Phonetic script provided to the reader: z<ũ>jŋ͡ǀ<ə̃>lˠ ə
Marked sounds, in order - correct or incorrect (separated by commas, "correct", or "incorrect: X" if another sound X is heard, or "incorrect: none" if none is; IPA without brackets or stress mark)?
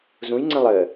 correct, correct